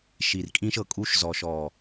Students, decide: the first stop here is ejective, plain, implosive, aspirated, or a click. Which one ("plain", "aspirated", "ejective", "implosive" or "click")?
ejective